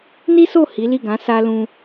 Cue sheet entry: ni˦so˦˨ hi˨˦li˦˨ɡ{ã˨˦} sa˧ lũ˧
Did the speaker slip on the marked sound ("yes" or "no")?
no